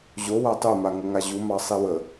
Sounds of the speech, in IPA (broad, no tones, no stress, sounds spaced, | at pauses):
ʑ o w a tˤ ɯ m a ŋ ə ŋ a ʑ u m ɑ sˤ i w ə